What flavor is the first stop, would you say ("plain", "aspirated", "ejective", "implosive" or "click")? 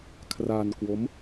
aspirated